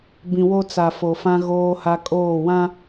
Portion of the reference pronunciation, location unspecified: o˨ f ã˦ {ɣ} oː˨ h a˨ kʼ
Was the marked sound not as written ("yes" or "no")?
no